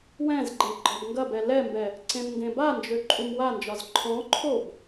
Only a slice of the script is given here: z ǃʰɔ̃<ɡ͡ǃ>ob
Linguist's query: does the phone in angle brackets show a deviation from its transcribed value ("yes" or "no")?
yes